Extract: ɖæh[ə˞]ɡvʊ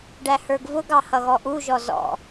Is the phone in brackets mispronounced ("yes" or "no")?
no